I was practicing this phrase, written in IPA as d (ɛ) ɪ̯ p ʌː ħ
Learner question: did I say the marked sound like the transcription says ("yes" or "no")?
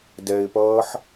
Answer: yes